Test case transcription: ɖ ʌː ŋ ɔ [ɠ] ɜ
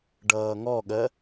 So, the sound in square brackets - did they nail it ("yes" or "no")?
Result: yes